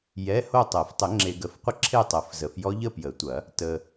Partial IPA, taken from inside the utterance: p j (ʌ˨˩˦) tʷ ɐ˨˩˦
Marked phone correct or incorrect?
incorrect